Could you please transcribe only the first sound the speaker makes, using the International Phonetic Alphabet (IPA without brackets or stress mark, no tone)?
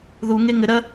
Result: ð